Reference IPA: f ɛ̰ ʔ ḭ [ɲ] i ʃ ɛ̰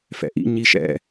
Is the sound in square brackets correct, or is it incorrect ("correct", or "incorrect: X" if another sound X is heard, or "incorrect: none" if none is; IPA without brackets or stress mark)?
correct